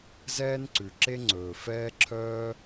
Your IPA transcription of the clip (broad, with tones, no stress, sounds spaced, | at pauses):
z ɛː˥ n ǀ ʉ˩ ǁ e˥ ŋ͡ǀ ɵː˩ f ɛː˥ ǁʰ œː˥